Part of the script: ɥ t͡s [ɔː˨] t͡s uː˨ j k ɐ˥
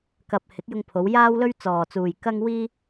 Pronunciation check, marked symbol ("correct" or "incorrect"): correct